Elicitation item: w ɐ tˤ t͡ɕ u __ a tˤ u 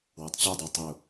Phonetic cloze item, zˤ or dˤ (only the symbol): dˤ